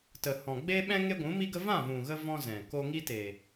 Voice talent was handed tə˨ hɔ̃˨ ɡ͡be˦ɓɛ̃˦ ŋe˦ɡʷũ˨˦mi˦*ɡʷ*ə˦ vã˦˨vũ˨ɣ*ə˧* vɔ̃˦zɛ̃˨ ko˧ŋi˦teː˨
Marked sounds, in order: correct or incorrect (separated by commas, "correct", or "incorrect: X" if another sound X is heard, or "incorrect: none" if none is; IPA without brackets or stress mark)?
incorrect: ɡ, correct